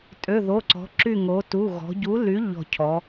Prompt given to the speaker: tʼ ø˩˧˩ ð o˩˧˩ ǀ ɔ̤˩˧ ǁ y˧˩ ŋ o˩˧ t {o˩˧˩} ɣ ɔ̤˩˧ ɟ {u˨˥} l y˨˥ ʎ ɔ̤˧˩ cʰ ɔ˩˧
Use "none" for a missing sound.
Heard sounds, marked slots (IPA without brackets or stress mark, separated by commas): u˩˧˩, u˨˥